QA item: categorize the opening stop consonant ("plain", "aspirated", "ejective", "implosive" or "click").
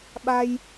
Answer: implosive